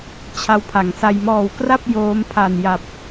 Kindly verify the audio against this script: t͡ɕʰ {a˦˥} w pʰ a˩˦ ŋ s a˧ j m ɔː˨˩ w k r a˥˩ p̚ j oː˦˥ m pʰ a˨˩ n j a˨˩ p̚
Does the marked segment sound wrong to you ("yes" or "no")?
no